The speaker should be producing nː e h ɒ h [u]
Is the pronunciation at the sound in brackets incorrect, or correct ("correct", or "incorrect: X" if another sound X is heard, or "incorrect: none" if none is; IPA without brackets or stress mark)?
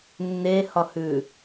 incorrect: ʉ